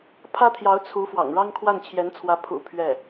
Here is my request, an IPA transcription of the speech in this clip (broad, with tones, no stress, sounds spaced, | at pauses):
pʰ ä˥ t̪ʰ j ɑ˧˥ ʊ̯ t͡sʰ u˧˥ f w ɑ̰˨˩ ŋ ɻ ɑ˥ ŋ kʰ w a˥˩ n t͡ɕʰ j ɛ˧˥ n t͡sʰ w ä˧˥ pʰ ṵ˨˩ pʰ ɥ ɛ˥˩